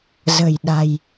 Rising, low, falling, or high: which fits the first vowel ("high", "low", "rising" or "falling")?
low